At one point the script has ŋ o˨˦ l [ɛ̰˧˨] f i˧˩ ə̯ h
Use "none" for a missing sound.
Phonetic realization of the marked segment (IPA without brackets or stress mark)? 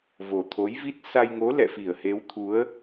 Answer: ɛ̰˧˨